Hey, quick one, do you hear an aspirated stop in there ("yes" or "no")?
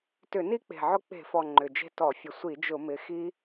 no